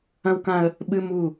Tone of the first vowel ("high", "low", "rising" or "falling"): high